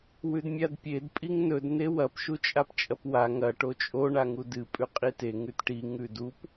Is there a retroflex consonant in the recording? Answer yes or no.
yes